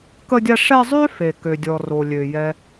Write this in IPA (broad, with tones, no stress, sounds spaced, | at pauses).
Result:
k ə˦ dʲ a˦ ʂ ɛ˦ zˤ ø˥ f e˩ k ø˩ dʲ ɔ˩ r o˩ lʲ ø˩ j ɛ˨